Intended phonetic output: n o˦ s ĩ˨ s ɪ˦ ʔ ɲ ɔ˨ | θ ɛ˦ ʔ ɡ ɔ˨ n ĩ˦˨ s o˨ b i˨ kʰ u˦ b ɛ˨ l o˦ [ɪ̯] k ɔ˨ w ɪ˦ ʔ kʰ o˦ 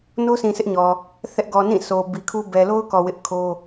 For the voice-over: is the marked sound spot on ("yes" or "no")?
no